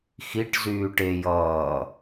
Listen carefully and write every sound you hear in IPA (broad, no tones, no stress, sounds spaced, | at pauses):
x i ʈ z yː ʈ e j ʌː